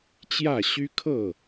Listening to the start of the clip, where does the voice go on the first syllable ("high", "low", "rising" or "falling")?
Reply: falling